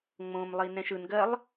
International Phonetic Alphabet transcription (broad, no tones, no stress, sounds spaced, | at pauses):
ŋ͡m õ m lˠ i n ɛ̃ ʃ ɯ n ɡ ɜ lˠ